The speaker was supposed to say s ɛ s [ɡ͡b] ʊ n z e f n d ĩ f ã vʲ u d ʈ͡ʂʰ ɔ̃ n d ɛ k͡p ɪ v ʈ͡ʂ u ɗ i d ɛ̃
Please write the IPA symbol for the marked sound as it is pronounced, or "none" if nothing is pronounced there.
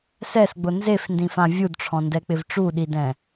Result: ɡ͡b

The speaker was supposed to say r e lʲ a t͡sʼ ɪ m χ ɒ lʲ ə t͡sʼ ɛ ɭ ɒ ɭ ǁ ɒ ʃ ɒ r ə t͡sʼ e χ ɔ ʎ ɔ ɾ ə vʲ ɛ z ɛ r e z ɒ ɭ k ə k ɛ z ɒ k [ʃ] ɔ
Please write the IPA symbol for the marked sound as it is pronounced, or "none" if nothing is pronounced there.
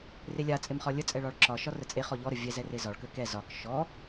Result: ʃ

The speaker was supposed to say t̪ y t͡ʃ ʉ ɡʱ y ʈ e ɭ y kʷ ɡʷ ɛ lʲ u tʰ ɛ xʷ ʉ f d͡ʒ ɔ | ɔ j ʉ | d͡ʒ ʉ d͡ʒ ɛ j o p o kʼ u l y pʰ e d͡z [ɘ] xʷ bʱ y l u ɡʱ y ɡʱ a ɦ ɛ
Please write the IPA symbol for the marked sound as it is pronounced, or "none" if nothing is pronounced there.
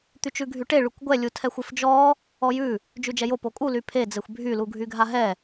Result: ɘ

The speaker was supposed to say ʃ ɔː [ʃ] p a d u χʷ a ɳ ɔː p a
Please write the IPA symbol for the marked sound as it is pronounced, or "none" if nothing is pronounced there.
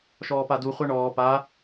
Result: none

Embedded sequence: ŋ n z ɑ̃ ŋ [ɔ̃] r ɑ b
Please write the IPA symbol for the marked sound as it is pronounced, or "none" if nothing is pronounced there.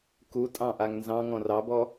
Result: ɔ̃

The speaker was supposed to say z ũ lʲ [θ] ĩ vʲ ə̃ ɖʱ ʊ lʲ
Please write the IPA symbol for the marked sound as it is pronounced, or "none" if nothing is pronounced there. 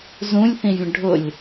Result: θ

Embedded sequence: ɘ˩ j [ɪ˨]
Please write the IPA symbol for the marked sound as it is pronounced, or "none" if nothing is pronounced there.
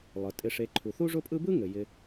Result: ɪ˨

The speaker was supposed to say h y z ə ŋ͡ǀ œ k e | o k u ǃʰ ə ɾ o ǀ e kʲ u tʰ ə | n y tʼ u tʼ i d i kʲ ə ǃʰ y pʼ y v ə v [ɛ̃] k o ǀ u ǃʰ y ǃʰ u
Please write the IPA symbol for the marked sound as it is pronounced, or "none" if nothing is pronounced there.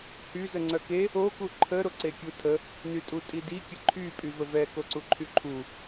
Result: ɛ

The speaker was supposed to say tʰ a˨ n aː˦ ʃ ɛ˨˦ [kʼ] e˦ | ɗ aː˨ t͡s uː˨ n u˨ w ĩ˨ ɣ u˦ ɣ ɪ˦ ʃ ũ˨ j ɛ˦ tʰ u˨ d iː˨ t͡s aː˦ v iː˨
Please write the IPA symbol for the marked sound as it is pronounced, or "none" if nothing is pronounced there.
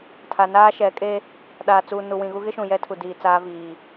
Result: kʼ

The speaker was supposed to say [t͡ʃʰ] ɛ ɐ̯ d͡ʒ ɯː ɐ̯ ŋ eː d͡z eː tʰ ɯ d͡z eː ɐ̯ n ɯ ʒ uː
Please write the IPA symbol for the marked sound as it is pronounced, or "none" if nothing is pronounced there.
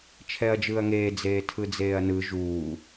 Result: t͡ʃʰ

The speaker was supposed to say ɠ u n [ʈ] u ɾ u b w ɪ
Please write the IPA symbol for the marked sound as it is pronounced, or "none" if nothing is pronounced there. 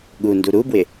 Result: d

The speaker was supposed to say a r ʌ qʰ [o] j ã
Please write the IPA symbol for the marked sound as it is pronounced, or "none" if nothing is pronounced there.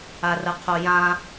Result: o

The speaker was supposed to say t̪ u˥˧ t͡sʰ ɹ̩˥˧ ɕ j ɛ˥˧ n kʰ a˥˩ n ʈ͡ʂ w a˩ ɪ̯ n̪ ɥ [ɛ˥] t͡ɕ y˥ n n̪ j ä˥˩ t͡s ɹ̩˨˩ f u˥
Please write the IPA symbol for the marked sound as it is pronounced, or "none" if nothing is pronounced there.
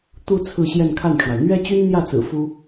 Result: ɛ˥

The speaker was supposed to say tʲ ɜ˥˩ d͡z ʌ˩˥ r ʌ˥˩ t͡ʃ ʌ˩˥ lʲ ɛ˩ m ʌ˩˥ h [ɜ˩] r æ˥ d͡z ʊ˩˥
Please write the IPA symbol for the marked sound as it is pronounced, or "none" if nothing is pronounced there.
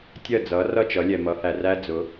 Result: æ˩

